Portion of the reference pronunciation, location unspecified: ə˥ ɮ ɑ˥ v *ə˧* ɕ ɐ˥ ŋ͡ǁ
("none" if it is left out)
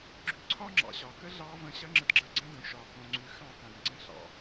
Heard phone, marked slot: ə̃˧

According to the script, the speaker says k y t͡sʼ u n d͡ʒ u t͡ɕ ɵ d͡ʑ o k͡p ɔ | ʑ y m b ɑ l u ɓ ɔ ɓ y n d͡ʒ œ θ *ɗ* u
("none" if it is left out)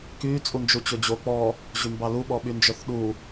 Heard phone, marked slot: ɗ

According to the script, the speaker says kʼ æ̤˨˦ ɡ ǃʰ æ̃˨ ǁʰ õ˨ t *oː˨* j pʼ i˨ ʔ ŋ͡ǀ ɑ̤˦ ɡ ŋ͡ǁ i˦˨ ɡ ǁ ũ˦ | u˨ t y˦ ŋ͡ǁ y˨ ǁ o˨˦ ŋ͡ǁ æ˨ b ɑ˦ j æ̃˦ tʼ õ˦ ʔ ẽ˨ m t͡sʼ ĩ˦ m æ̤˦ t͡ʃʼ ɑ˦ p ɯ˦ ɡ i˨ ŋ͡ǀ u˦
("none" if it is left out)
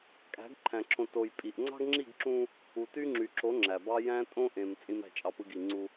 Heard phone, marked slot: o˨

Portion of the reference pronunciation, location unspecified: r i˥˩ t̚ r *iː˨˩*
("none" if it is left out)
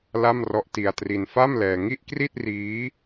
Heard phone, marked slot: iː˦˥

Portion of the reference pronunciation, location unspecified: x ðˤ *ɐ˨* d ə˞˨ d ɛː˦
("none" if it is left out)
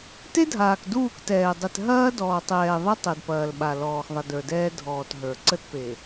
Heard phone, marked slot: ɐ˨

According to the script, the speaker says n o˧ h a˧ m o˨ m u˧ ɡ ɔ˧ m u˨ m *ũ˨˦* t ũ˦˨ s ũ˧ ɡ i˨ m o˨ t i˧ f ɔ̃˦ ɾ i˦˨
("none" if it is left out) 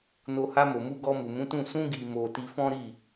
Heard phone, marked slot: ũ˨˦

